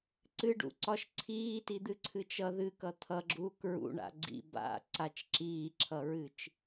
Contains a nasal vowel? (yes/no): no